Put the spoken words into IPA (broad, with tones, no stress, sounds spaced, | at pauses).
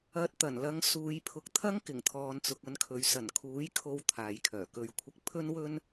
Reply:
ɐ˧ t̚ t̪ ɐ˨˩ n l ɐ˧ ŋ s uː˨˧ j pʰ ʊ˨˥ k̚ t̪ʰ ɐ˥ ŋ k ɪ˨˩ ŋ t̪ʰ ɔː˨ n t͡s ʊ˨ k̚ ɐ˧ n kʰ ɵ˨˧ ɥ s ɐ˨˩ n kʰ uː˨˥ j kʰ o˧ w t̪ʰ aː˨ j kʰ œː˨˩ k ɵ˧ ɥ kʷʰ ɪ˧ k̚ pʰ ɵ˥ n w ɵ˥ n